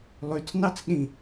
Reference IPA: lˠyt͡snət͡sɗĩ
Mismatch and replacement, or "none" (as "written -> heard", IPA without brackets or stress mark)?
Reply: ə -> ɑ